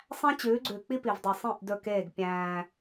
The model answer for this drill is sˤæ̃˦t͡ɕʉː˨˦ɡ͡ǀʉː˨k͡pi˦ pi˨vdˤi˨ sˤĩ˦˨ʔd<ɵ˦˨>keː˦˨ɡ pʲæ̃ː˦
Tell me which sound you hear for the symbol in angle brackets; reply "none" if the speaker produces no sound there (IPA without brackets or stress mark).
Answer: ɵ˦˨